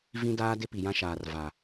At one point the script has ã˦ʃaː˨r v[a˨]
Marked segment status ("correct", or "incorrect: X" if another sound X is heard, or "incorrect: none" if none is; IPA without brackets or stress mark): correct